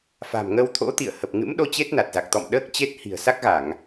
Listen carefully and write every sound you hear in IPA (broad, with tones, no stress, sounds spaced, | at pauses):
f a̤˨˩ m ŋ ə˧ w t̪ʰ o̰˧˥ t̪ ḭ˧˨ ə̯ h ə˨˩ p̚ ŋ ɨ̰˧˥ m ɗ o˧ t͡ɕ e˦˥ t̚ n a˨˩ t̚ z a˨˩ k̚ t̪ ɔ̰˧˨ m ɗ əː˦˥ k̚ t͡ɕ e˦˥ t̚ h i̤˨˩ ə̯ s a˦˥ k̚ ɣ a˧˩˨ ŋ